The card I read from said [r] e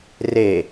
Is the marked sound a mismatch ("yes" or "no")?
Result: no